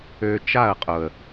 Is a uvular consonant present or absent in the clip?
present